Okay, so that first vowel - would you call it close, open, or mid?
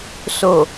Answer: mid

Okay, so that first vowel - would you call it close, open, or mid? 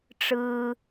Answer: close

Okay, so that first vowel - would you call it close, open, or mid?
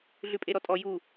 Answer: close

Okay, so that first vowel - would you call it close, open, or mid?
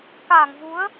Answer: open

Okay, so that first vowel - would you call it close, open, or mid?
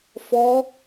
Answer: mid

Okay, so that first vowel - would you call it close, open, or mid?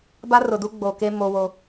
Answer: open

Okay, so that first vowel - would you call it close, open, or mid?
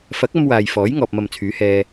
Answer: open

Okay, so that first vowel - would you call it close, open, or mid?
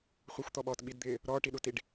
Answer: mid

